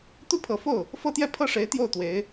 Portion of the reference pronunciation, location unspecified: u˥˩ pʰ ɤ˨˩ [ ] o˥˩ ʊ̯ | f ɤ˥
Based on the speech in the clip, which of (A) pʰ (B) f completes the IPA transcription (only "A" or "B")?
B